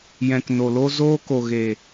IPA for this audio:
jɛ̃˨kno˨lo˧ zoː˧ko˨ɣe˨

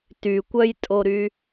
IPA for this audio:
tykʷœjtʼoɾy

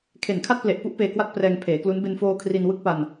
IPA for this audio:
kʰe˨˩nkʰa˥˩t̚ple˨˩ʔpu˥˩ʔ peː˧kwa˥˩t̚prɛː˧ŋ pʰeː˩˦klu˦˥n be˧nfoː˧ kʰri˧nwɯ˦˥k̚pa˧n

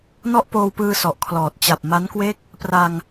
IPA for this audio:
nɔ˥˩ʔpoː˧wpɯː˧ sɔ˨˩ʔkʰlɔː˨˩t̚ t͡ɕa˨˩p̚ma˦˥nkwe˥˩k̚ | pra˧ŋ

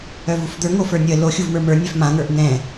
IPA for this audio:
œvufd̪ə˞ ŋofə˞nʲə lo xʲuvmə˞mə˞ nʲœfmã ŋə˞ʔn̪ɛ̃

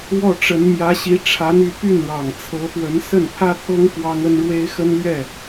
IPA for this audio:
wɔ˥˩ʈ͡ʂə˧˥n mjä˧˥ɕi˧˥ ʈ͡ʂʰa˧˥n y˥˧ py˥˩nɻɑ˨˩ŋt͡sʰɤ˧˥pwə˧˥n sə˥˩npʰä˥t̪ʰɤ˥ŋ kwɑ˥ŋə˥n ɻwe˥ɪ̯xə˥nlɥɛ˥˩

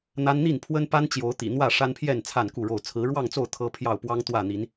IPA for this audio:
n̪a˦n n̪i˥˨n pʰwə˦npa˦n t͡ɕjo˨˦ʊ̯t̪ḭ˨˩n̪wä˥˨ ʂa˦npʰjɛ˥˨n t͡sʰa˥˨nku˥˨ɻo˥˨ʊ̯ t͡sʰɹ̩˨˦ɻwɑ˥˨ŋt͡so˥˨ʊ̯ t̪ʰɤ˦ pʰjɑ˥˨ʊ̯pwɑ˦ŋ t̪wä˥˨n̪i˨˦n

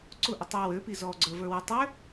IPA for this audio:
ǀʊ ʔɪtˤu wøpi zɔ ɡ͡ǀə˞və˞wə tˤø

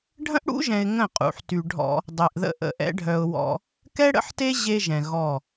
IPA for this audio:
ɖʱə̃˦ʔɽṵ˦ʒɛ̃˨ɪ̯ ŋə̃˦˨ qʼṵ˨ħty˨ ɖʱɔ̰˦ | dˤe˨ʔðə̰˦ ʔə̰˦ʔɛ̰˦ ɖʱœ˨ʊ̯ wɔ̰˦ | kɛ˦ɽə̰˦ħte˦ ʑe˦ʒɛ̃˨ɣɔ˦˨

